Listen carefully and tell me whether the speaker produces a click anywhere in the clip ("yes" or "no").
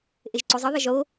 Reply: yes